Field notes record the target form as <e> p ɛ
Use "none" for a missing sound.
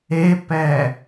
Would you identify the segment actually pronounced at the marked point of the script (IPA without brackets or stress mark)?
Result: e